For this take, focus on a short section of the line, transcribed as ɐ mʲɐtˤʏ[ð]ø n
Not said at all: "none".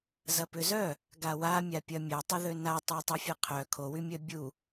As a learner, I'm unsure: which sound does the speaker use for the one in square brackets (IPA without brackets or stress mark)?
ð